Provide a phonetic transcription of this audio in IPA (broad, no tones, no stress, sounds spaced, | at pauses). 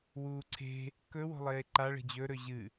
w uː ǀʰ e̤ | k ɵ w o̤ lˠ eː ǃ a ɭ e̤ d͡ʑ ɵ ɾ ɵ ʑ ɨ